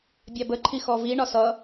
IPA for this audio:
bʲ ɑ b ə ǃʰ i x ɔ v i ɳ ɒ s ʌ

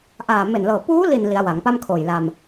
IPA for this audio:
ʔ aː˨˩ m e˨˩ n l ɤː˨˩ p uː˦˥ l i˨˩ n l i˩˦ a̯ w a˩˦ ŋ p a˥˩ m kʰ oː˨˩ j l a˧ m

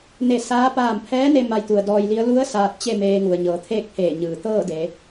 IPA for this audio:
n e˧˩ s aː˧˥ p aː˧˩ m pʰ ɛː˧˥ n e˧ m a˧ j t̪ u˩ ə̯ d ɔː˧ j l i˧˥ ə̯ l u˧˥ ə̯ s aː˧ t̚ t͡ɕ e˥˨ m eː˧ ŋ u˩ ə̯ ɲ ɤː˩˧ t̪ʰ eː˥˨ k̚ pʰ eː˧˩ ɲ ɯː˩ t̪ ɤː˥˨ d e˩˧

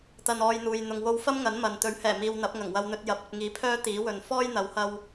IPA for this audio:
t̪ ɐ˧ n ɔː˧ j n̪ uː˨ j n̪ ʊ˨ ŋ w o˧ w f ɐ˥ m ŋ ɐ˨˥ n m ɐ˨ n t̪ ɵ˨˥ ɥ h ɛː˨˩ m iː˨ w n̪ ɐ˨˥ p̚ ŋ ɐ˨˩ ŋ w ɐ˧ w n̪ ɵ˧ t̚ j ɐ˨˥ p̚ ɵ˨ t̚ ŋ iː˨˥ pʰ œː˥ t̪ iː˨˥ w ɵ˨ n f ɔː˥ j n̪ ɐ˨˥ w h ɐ˧ w

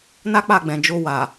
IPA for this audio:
n a˦ k͡p a˦˨ ɡ͡b ɛ̃˨ d͡ʒ o˧ w a˨

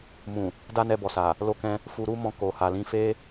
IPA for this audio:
m ũ˨ | d a˦ n ɛ˧ b ɔ˨ s a˨ | l o˧ k ɛ̃˧ | f u˧ ɾ u˦ m ɔ̃˧ k o˨ h a˨ l ĩ˧ f e˦

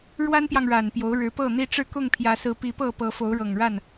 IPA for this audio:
ɻ w a˦ n p j ɑ˨ ŋ ɻ a˨˩ n p j o˨˦ ʊ̯ ɻ ɻ̩˨˦ p ɤ˥˨ n̪ i˦ ʈ͡ʂ ɻ̩˥˨ k ʊ˥˨ ŋ pʰ j ä˨˦ s ɹ̩˨˦ p i˨˦ p ɤ˥˨ p ɤ˨˦ f o˨˦ ʊ̯ ɻ ɤ˨˩ ŋ ɻ a˥˨ n

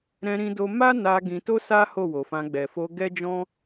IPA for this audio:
ɾ ɛ̃˧ ɾ ĩ˧ d o˧ m a˦ n a˧ ɡ ĩ˧ t o˦ s a˦ h o˦˨ w o˨ f ã˧ ɡ͡b ɛ˨ f o˧ ɡ ɛ˦ d͡ʒ ɔ̃˦

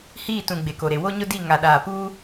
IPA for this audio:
h iː˦˨ t ũ˨ ɡ͡b e˨ k o˨ ɾ e˨ w o˦ ɲ ʊ˦ d i˦˨ ŋ a˨ ɗ aː˨ p uː˦

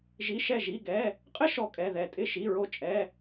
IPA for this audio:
ʒ i˧˥˧ ʃ ɛ˥˨ ʒ i˧˥˧ ɡ ɛ˧˥˧ | qʼ ɪ˥ ʃ ɔ˥ kʼ ɛ˧˥˧ ð ɛ˥˨ tʼ ɪ˥˨ ʃ i˧˥˧ ɹ o˥ t͡ʃʼ ɛ˧˥˧

